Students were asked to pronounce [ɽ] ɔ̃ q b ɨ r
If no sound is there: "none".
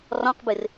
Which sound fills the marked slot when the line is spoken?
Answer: r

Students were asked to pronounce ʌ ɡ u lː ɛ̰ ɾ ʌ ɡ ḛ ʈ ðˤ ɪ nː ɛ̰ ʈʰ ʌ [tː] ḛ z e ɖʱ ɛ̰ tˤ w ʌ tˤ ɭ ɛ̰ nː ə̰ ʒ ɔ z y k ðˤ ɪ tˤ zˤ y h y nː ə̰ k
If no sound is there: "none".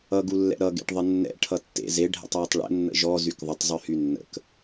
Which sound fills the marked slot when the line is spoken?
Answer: tː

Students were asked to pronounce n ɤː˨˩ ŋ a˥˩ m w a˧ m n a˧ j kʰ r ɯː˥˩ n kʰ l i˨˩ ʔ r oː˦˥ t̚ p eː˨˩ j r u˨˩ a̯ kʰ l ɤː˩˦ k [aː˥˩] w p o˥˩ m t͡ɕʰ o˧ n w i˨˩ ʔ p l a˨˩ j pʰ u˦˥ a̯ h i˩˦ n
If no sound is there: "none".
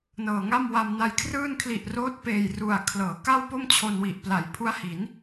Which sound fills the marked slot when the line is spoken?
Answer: a˥˩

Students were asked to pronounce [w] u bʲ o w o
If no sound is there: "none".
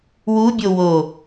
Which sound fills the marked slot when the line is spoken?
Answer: w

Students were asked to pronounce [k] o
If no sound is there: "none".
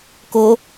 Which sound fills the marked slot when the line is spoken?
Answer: k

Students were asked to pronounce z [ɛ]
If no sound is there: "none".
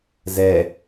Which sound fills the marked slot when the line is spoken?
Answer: ɛ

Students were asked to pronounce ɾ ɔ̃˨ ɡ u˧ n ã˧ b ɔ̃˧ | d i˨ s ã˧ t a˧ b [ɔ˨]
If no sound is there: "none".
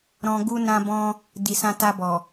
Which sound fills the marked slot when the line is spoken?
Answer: ɔ˨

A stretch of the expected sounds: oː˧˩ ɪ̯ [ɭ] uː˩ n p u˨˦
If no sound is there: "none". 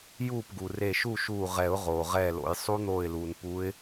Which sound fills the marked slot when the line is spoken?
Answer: l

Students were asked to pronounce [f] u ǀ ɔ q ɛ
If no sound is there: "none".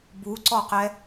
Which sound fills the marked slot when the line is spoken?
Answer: b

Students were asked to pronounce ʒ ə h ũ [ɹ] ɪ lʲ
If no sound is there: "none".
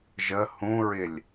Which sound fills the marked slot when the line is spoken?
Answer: ɹ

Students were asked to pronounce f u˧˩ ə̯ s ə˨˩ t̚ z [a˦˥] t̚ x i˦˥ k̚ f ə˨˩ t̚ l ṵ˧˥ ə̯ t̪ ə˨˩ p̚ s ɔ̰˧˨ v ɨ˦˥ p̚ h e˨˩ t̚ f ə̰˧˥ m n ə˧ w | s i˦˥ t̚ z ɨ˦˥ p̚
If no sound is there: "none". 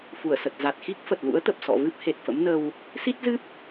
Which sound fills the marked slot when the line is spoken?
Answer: a˨˩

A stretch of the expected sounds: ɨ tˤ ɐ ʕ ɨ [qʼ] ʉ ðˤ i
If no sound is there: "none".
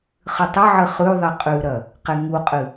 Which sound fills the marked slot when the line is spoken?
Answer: χ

